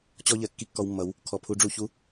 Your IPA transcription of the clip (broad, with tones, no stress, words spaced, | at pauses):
t͡ɕɔ˦ʎɜ˨ kːi˦kːɔ˧wmːʌ˨˦w | kʰɔ˨pʰu˧ɖ͡ʐu˦˨çu˦